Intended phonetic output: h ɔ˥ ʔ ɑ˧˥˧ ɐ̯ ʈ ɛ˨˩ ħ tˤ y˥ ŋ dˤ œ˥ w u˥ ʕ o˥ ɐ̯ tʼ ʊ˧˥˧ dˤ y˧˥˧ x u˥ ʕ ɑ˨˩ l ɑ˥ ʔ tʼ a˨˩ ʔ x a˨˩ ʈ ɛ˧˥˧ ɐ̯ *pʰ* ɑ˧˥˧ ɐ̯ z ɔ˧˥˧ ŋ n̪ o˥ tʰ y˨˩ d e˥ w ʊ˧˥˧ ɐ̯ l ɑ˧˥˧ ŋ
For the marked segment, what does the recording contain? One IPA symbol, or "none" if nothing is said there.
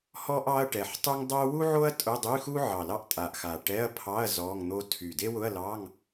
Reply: pʰ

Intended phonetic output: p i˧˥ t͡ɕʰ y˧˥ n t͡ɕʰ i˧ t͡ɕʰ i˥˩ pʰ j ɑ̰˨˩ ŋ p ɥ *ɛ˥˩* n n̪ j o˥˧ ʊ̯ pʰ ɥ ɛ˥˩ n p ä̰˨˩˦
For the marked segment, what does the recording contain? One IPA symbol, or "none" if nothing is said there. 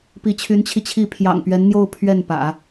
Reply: ɛ˧˥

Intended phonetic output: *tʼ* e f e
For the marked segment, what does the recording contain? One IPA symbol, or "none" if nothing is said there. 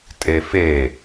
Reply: tʼ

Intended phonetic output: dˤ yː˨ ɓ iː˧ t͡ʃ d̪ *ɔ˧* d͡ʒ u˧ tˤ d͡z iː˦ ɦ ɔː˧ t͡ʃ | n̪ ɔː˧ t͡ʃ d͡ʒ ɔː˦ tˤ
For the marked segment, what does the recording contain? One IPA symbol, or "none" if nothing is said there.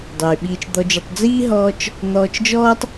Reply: ɔ˧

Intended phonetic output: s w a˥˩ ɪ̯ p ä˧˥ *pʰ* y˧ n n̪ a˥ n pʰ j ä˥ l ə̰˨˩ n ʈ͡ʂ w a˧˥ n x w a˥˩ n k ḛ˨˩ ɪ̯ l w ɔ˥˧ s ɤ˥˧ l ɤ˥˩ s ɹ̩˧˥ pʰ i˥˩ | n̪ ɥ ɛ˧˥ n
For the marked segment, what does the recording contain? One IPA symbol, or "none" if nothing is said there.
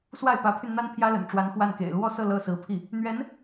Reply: pʰ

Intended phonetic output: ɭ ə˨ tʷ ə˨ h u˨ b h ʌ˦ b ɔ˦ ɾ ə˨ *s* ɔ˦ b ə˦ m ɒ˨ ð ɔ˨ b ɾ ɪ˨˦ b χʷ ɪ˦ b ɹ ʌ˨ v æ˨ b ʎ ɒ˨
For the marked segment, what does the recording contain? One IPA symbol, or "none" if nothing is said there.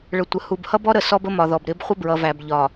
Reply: s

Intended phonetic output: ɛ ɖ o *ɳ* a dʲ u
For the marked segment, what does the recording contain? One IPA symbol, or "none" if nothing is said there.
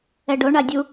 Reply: ɳ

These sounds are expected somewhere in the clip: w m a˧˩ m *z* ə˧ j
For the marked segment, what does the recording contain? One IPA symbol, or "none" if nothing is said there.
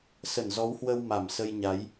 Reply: s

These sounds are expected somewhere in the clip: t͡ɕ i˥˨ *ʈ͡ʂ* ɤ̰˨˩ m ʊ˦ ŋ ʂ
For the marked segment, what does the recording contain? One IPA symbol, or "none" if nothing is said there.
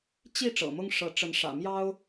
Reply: ʈ͡ʂ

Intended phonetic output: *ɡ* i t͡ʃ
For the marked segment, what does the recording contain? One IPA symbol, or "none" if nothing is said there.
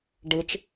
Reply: ɖ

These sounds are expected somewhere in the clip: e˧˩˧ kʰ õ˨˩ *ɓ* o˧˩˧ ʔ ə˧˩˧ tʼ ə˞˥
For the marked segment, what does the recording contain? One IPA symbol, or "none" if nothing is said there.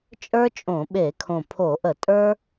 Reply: pʰ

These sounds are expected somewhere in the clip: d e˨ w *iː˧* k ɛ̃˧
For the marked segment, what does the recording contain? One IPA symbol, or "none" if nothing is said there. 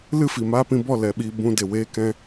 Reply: eː˧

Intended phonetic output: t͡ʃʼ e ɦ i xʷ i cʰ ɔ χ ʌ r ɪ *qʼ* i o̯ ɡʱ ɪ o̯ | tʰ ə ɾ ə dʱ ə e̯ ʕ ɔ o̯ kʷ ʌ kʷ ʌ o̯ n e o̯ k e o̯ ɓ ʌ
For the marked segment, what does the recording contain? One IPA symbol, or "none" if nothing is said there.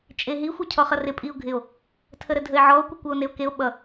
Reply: pʼ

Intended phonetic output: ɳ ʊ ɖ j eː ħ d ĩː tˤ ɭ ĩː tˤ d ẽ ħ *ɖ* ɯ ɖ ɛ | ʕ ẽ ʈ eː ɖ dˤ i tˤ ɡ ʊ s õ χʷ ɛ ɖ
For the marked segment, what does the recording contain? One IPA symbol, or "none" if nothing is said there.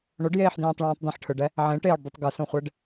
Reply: ʈʰ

